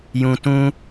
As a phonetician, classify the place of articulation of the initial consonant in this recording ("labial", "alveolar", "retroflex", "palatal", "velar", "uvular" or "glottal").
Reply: palatal